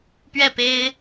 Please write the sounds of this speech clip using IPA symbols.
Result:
p ɥ ɛ˥˩ p e˥ ɪ̯

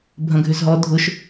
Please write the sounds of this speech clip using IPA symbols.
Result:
bʱ ɐ̃ ɡʱ ʏ z ɦ ɔ dʱ ʊ ʃ

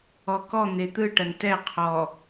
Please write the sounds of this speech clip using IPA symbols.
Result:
ɔ k ɔ n̪ e t̪ ɯ ʈ ɐ n t ɛ qʰ ɔ

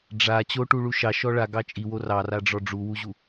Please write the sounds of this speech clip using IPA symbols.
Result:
ɖ͡ʐ a t͡ɕ o ʈ u ɭ u ʃ ɑ ʃ ɔ ɭ a ɡ ɑ t͡ʃʼ i w o r ɑ r a ɖ͡ʐ ɔ ɖ͡ʐ u w u ʑ u

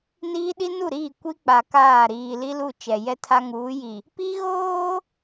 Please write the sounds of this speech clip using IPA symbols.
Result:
n iː˦ ɗ i˦ n u˦˨ ɾ iː˦˨ kʷ i˦ k͡p a˨ k aː˦˨ ɾ iː˨ l i˦ l u˦˨ t͡ʃ ɛ˨ j ɛ˦ tʰ a˦ ŋ uː˨˦ j i˨ | p i˦ ɣ oː˦

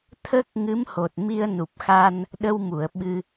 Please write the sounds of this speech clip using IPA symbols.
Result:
t̪ʰ ə˦˥ k̚ ŋ ɨ˧˥ m h o˨˩ t̚ m i˧ ə̯ n u˨˩ p̚ x a˧ n | ɗ ə˧ w m u˨˩˨ ə̯ ɓ ɨ˧

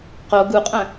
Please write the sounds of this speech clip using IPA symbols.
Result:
q o ɡ u qʼ œ̃

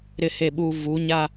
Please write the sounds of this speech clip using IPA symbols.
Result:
ɾ ɪ˨ h e˨ ɓ u˨ v u˨˦ ɲ a˦

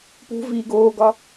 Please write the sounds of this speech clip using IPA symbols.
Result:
p ṳ v iː ɡ oː ɡ ɒ

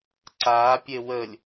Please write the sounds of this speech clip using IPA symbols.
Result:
ǀ a pʲ e w ə lʲ

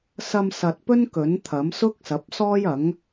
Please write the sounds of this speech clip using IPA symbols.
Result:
s ɐ˧ m s ɐ˨ t̚ p ɵ˥ n k ɵ˨˥ n t̪ʰ ɐ˨˥ m s ʊ˥ k̚ s ɐ˨˥ p̚ s ɔː˥ j ɐ˨˥ ŋ

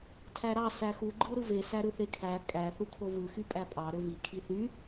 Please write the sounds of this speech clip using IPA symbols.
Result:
tʰ æ ɾ ɑ s æ x u ɡ͡ǃ ɯ ɾ ɯ v e s æ ɾ ɯ θ e kʰ æ kʼ æ θ u kʰ o v ɯ x y pʼ æ pʼ ɑ ɾ ø v i kʰ i θ y

